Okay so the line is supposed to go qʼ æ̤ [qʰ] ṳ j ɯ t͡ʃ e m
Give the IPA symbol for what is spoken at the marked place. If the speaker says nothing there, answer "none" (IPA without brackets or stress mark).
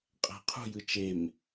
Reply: qʰ